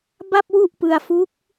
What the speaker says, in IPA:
b a˥˩ p̚ w u˥˩ ʔ p ɯ˧ a̯ f u˦˥ k̚

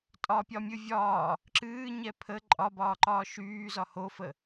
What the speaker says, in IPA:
tʼ ɒ pʲ ɒ mʲ ɨ vʲ ɒː | ǁ ɨː ɲ ɛ pʰ ə ǃʼ ɒ b ɒː ǃ ɒː ʃ yː z ɒ h o f ə

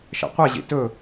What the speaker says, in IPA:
ʃ ɛ̰ qʷ ɛ ʑ ḭ t ɵ

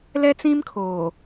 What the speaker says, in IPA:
l ɛ˦ t͡s ĩ˦ m kʰ oː˨

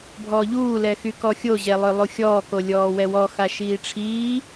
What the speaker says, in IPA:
bʱ ɔː ʎ uː l ɛ x y k ɔ xʲ o ʑ ɛ lˠ ø lˠ u xʲ ɔː k o lʲ ɔː w ɛ w ɔ x a ʃ iː ʈ͡ʂʰ iː

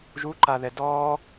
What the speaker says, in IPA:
ʒ u ǃ a ð ɛ d ɔː

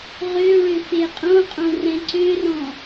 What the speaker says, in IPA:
ʁ ø ɭ ø f e qʼ õ qʼ õ r ɛ̃ ǀ ø r ɔ̃

